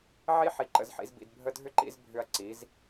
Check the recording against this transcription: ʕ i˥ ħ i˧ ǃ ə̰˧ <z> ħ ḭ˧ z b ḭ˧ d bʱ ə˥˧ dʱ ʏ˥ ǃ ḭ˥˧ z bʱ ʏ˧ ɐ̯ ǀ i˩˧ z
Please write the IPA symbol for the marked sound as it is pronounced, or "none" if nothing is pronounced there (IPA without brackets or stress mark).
z